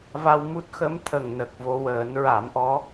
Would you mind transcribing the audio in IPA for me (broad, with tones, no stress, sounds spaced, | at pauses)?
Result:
v a˧ w m u˦˥ t̚ x ə˧˥ m t̪ʰ ə˨˩ ŋ n ə˨˩ k̚ v o˧ w əː˨˩˦ n ɹ a˨˩˦ m ʔ ɔ˧˥